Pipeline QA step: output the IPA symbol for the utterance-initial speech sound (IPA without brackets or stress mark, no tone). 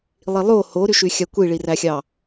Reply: lˠ